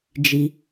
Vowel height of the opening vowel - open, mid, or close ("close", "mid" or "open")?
close